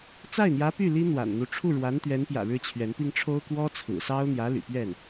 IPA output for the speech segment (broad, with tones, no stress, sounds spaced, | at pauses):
t͡s a˥˩ ɪ̯ n̪ j ä˧˥ p y˥˩ l i˥ n̪ w a̰˨˩ n n̪ u˧˥ ʈ͡ʂʰ u˥˩ ɻ w a˧˥ n t̪ ɥ ɛ˧˥ n p j ä̰˨˩ ɻ ɻ̩˥˩ t͡ɕʰ ɥ ɛ˧˥ n p i˥ ŋ ʈ͡ʂʰ o˥ ʊ̯ k w ɔ˥ t͡sʰ ɹ̩˨˩ s ɑ˥ ʊ̯ n̪ j ä˧˥ l y̰˨˩ p ɥ ɛ˥˩ n